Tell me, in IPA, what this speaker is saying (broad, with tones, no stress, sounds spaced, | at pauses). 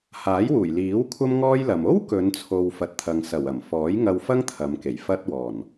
h aː˨˥ j w uː˨˩ j l iː˨˥ w kʷʰ ɐ˥ m ŋ ɔː˥ j l ɐ˨ m o˥ w k ɵ˨˧ n t͡sʰ o˨ w f ɐ˨ t̚ t̪ʰ ɐ˨ ŋ s ɐ˨˩ w ɐ˨˩ m f ɔː˨˥ j ŋ ɐ˧ w f ɐ˥ ŋ t̪ʰ ɐ˨˧ m k e˨˩ j f ɐ˥ t̚ w ɔː˨˩ n